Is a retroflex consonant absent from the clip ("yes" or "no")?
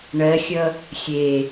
no